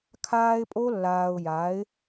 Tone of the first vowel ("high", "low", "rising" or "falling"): high